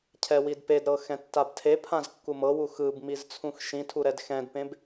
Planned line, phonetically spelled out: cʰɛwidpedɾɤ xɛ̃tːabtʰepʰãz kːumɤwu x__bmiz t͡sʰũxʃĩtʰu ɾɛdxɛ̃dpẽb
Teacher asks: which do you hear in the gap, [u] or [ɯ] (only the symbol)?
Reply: ɯ